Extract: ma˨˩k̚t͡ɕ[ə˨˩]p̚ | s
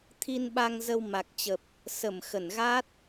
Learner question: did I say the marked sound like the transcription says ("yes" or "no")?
yes